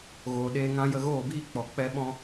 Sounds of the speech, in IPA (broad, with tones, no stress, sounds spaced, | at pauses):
ɣ oː˨ ɗ eː˧ ŋ ã˧ j ə˧ ɣ oː˦˨ b iː˦ k͡p ɔ˨ k͡p ɛ˦ ɓ ɔ̃˦